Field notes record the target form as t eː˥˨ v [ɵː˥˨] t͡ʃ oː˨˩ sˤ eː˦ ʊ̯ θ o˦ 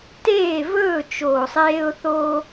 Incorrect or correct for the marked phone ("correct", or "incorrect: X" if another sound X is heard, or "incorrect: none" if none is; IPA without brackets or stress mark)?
correct